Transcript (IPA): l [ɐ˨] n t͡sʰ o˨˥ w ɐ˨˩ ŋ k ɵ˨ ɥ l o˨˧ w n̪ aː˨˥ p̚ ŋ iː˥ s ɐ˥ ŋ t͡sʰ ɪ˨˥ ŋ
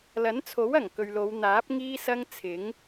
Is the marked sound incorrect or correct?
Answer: incorrect